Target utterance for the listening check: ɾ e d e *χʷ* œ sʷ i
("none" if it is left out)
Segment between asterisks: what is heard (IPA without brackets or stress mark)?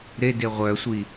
ʁʷ